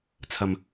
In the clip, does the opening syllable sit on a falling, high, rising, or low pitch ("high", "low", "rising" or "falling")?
low